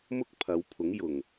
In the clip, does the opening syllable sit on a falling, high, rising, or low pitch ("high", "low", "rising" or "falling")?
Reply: high